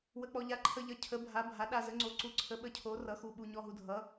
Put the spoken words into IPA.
wə˧k͡pɔ˧ʎa˨˥ ǃʰə˧ʎʌ˨˥ cʰə˨˥bʱa˨˥ bʱa˨˥ɗa˧zə˨˥ŋ͡ǀo˨˥ ǀu˨˥ǀʰə˨˥ɓə˧cʰo˨˥ rʌ˨˥xu˧ɓu˧ ɲɔ˧ɦu˧dʱʌ˨˥

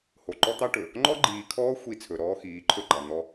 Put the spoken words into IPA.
ho˨ǃɔ˦t̪ɑ˦ ʈɵ˨ | ŋ͡ǃɔ˦ɡ͡ǃiː˨kʰɔː˦ xʷi˦˨ t͡sʰɵ˨ɾɔː˦xiː˨˦ ǃʰɵ˦ɡ͡ǃɑ˨ n̪ɔ˦

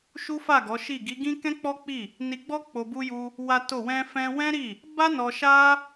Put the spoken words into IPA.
ʃu˦fa˦˨ɡɔ˨˦ʃi˦˨ ɡi˨˦ɡĩ˦ kɛ̃˦k͡pɔ˦k͡pi˦˨ | ni˧ɡ͡bɔ˦ k͡po˧bu˦ju˦ | wa˦to˦˨ wɛ̃˧fɛ̃˧wɛ̃˦ɾi˦˨ | ba˦nɔ˧ʃa˦

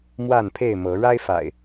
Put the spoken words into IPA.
mwa˥˨npʰe˥˨ɪ̯mɤ˨˦ ɻa˦ɪ̯fa̰˨˩ɪ̯

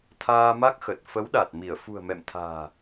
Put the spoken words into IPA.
t̪ʰaː˧ma˦˥k̚xə˨˩t̚ fə˨˦wɗa˨˩t̚mi˧˩ə̯ fṳ˨˩ə̯mɛ̰˧˨mt̪ʰa̤ː˨˩

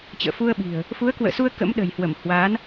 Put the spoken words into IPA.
t͡ɕə̰ː˧˨fu˧ə̯ɓi̤˨˩ə̯ | fu˨˦ə̯kwə̰ː˧˨su˧ə̯ kə̰˧˥mɗə̤˨˩jhwə˧˩m hwa˨˦n

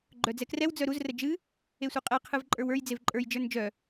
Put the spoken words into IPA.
ɡ͡ǃœd͡zɛkrɛw d͡zœɾuz rəd͡ʒɨ | esʷɨqʼɛ qʰɨvǃʼə˞wə˞j d͡zevǃʼə˞j d͡ʒə˞nd͡ʒœ

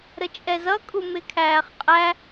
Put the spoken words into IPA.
ɾət͡ʃʼɛzʌkʼu mɪkʰæːχqʼæ

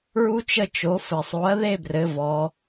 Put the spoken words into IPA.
ɹu˥t͡ʃə˥˧t͡ʃo˩˥fɘ˨˩ sˤo˩˥ɐ̯ðe˥˧brɘ˩˧ vɔ˩˧

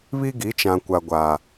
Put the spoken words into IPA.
βi˦ɡi˨˦t͡ʃã˨kʷa˨ ɡʷa˨

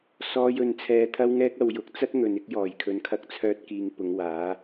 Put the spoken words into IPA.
sɔː˧jɵ˨n t͡sʰɛː˨t̪ʰɐ˧wŋɛː˧k̚ɐ˨w jʊ˨k̚t͡sɐ˥t̚ŋɵ˨n ɪ˧k̚jɔː˨˩j kʰɵ˨nkʰɐ˧k̚t͡sʰœː˧t̚ kiː˨ŋ pʊ˨˧ŋwaː˨˥

